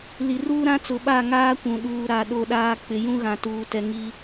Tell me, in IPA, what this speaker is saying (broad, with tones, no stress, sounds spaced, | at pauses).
l i˨ r uː˦ ɾ ã˦ t͡s ʊ˨˦ ɓ a˦˨ ŋ aː˦ kʷ ũ˨ ɗ uː˨ ɾ a˨ ɗ o˦ ɗ aː˦ k͡p ɪ˨ j ũ˦ ɣ ã˨ t uː˨ t ɛ˨ ŋ i˦